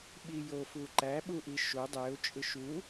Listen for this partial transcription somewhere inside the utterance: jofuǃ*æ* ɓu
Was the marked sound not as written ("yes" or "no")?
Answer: no